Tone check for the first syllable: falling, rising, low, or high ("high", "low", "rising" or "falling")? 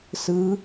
rising